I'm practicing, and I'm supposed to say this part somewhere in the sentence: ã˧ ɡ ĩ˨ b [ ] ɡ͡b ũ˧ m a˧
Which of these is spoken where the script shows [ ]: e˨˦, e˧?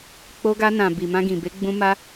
e˨˦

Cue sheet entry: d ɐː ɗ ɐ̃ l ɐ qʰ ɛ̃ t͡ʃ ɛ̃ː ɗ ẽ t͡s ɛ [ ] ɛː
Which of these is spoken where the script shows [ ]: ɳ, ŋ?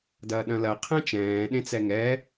ŋ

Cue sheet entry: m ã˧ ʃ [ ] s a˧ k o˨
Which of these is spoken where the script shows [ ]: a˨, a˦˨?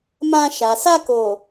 a˨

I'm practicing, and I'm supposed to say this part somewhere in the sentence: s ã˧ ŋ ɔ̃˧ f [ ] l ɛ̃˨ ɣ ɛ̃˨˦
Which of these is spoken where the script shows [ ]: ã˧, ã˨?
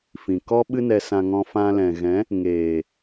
ã˧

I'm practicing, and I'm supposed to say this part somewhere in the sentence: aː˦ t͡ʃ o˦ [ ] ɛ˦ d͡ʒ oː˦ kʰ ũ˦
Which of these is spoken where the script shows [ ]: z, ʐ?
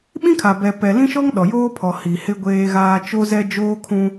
z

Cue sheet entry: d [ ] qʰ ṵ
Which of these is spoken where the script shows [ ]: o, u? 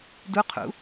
u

